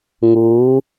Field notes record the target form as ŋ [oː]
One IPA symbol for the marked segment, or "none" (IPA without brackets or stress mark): uː